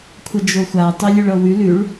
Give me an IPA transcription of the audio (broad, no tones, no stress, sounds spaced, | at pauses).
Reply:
kʷʰ ʌ d͡ʒ o xʷ a tˤ ø lʲ ʉ ɭ ɤ w ʉ l ʉ ɭ